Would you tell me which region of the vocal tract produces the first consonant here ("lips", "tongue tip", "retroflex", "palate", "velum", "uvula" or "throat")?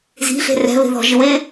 tongue tip